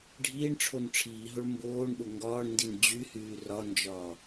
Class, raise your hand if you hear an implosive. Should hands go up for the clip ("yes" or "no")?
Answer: yes